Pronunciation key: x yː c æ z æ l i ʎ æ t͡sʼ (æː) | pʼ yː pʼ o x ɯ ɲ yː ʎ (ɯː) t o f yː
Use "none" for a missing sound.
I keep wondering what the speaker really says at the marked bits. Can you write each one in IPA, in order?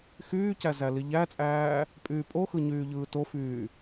æː, ɯː

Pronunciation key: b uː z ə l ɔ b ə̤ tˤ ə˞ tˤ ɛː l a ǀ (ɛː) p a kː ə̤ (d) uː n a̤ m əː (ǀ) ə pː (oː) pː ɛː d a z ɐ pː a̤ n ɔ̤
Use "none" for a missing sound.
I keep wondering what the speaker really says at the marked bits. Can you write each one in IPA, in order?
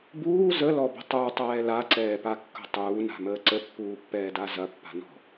ɛː, tˤ, ǀ, uː

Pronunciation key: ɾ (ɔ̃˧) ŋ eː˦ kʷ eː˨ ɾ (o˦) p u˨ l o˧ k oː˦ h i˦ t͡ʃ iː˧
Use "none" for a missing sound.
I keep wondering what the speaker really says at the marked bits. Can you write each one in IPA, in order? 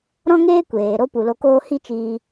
ɔ̃˦, o˦

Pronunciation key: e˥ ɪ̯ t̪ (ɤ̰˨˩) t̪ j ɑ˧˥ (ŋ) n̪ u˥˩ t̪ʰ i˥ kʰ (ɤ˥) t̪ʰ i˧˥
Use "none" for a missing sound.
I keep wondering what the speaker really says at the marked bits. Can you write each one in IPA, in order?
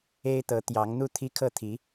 ɤ˧˥, ŋ, ɤ˥˩

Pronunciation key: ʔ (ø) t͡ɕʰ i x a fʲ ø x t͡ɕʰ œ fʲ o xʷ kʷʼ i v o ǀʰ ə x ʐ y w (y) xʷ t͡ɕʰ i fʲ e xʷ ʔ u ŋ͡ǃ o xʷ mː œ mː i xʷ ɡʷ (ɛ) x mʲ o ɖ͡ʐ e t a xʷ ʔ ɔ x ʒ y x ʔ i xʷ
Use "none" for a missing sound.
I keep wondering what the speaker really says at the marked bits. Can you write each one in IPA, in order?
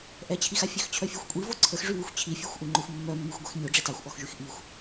ɛ, y, e

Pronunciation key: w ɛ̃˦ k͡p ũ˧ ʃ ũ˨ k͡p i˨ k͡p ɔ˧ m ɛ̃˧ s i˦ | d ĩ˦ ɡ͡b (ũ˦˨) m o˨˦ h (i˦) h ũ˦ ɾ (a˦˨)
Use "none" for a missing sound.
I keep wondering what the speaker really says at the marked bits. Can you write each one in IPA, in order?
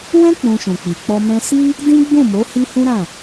ũ˦˨, i˦, ã˦˨

